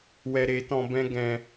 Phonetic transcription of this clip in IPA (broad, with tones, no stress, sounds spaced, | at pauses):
w ɛ˧ ɾ e˨˦ t ɔ̃˧ b ɛ̃˦ ɡ ɛ̃˧